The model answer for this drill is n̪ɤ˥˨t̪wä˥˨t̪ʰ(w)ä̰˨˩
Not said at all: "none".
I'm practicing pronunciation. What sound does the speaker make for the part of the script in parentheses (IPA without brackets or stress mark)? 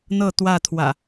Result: w